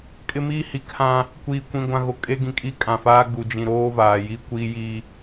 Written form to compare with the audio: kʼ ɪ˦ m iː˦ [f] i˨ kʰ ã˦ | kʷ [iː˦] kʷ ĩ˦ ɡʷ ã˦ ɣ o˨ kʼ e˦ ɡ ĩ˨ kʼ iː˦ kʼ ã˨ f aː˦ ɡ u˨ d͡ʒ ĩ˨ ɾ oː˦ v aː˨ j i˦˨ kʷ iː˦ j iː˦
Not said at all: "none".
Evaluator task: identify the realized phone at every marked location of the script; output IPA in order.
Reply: h, iː˦

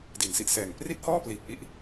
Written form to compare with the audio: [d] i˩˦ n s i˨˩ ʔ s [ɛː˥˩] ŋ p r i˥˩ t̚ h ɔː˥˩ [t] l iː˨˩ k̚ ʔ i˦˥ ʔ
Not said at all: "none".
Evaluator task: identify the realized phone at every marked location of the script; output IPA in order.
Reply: d, ɛː˨˩, p

